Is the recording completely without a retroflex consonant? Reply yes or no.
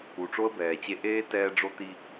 no